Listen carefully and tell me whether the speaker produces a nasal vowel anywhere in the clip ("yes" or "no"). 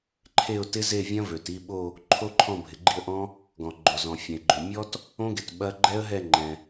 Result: yes